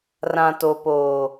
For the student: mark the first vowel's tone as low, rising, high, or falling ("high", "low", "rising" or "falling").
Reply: low